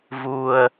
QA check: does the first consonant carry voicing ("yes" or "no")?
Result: yes